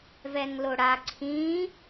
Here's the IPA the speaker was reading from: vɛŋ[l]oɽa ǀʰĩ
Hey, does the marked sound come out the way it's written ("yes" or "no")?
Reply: yes